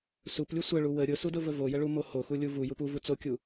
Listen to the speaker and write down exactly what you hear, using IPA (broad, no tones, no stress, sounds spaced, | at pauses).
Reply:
s u p lʲ u sʷ ə ɭ u w ə ɾʲ ʊ s u d ʊ v ə v o j ə ɭ u m o h o x u lʲ u v u j u p u v u t͡s o kʲ u